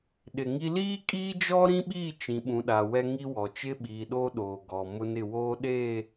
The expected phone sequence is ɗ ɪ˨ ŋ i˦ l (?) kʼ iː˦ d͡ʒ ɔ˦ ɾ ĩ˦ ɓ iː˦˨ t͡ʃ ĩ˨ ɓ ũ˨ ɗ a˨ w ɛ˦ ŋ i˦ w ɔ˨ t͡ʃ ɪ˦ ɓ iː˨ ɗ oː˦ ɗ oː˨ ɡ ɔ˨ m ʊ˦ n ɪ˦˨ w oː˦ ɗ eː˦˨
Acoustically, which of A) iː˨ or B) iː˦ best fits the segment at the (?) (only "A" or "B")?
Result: B